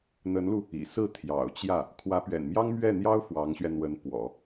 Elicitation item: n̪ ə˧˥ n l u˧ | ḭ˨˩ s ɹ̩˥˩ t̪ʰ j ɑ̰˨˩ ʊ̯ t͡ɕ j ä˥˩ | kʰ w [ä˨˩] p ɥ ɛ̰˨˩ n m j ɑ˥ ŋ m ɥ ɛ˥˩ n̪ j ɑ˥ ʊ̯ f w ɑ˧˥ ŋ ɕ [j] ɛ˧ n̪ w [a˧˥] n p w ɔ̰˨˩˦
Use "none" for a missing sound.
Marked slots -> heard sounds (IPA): ä˧˥, ɥ, ə˧˥

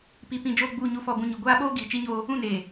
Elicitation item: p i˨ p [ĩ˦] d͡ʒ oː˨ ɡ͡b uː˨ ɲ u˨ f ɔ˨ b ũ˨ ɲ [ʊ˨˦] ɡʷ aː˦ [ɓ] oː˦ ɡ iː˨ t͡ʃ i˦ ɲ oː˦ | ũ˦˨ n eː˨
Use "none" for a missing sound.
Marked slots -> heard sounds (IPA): ĩ˨, ʊ˨, ɓ

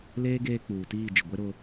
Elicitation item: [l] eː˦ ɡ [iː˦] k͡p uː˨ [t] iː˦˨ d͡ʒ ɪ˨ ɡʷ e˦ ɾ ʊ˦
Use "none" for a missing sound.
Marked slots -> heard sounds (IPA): l, eː˦, t

